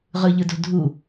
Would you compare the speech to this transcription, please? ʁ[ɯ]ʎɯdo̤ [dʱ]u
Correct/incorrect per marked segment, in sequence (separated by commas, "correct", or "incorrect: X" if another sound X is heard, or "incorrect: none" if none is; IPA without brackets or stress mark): correct, correct